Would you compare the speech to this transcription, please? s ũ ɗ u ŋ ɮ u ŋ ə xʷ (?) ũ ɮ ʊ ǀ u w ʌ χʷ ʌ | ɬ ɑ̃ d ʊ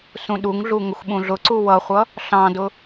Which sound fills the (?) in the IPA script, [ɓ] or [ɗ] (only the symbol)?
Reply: ɓ